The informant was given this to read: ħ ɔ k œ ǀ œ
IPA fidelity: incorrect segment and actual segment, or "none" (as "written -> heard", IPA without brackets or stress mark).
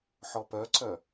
k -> p